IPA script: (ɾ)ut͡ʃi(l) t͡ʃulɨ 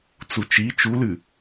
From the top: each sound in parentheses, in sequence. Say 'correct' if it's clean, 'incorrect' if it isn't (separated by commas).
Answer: incorrect, incorrect